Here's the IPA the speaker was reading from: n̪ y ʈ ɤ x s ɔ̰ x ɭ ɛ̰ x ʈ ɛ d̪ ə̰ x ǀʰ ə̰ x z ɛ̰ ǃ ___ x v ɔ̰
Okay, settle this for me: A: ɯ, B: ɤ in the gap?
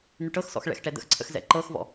B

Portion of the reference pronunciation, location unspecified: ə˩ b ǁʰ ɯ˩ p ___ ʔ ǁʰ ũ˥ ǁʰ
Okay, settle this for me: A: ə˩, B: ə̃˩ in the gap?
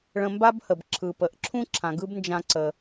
A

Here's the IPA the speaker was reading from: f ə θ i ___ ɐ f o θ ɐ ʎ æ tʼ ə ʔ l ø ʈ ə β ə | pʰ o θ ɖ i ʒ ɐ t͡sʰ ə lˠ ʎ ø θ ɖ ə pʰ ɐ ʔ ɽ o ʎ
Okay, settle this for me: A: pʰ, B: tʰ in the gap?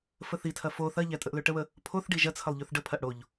B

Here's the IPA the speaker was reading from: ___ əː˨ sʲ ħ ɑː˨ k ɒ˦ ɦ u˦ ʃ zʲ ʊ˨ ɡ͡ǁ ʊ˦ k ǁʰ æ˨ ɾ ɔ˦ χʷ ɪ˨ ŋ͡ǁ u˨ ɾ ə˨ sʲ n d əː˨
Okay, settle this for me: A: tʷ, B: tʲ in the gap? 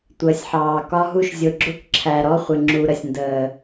A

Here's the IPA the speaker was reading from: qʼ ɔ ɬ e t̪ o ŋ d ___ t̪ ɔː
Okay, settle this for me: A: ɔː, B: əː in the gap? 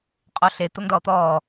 A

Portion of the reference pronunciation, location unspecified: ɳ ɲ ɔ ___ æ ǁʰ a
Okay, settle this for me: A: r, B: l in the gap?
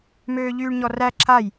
A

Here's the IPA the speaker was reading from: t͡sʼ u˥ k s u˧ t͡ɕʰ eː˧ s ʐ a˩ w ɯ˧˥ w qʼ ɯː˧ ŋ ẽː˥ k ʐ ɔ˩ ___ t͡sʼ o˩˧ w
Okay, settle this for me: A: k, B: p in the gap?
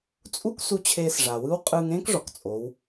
A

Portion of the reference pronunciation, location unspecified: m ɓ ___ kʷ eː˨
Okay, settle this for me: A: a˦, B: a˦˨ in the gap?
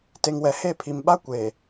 A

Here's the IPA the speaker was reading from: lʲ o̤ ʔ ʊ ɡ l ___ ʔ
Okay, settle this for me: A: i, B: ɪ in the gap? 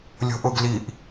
A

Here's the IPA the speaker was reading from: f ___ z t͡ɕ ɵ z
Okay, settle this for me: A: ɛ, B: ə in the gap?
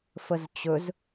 B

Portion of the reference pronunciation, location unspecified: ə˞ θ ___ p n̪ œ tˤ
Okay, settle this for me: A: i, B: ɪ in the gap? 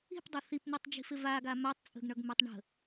A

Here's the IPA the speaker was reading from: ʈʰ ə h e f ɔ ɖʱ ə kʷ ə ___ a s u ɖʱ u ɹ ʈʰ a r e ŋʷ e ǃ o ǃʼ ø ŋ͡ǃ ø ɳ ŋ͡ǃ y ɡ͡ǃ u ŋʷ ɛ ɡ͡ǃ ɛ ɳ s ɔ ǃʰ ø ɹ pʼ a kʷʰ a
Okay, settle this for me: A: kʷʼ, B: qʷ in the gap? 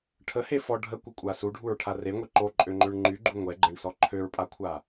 A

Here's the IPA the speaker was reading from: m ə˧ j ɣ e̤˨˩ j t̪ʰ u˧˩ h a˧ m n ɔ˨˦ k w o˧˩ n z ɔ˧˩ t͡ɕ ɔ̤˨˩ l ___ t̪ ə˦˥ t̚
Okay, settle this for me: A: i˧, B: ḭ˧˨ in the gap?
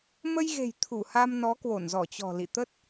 B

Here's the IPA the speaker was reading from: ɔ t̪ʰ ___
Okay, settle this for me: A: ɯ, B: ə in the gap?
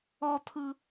A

